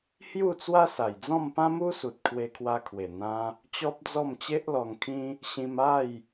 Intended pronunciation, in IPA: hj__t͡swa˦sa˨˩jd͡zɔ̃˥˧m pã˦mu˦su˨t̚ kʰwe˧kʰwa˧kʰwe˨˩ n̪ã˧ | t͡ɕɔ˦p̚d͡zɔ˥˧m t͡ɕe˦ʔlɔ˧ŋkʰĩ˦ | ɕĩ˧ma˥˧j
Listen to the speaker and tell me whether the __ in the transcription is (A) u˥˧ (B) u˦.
A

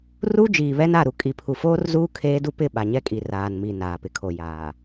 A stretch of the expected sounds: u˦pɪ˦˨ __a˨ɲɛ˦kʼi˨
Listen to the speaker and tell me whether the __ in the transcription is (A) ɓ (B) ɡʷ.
A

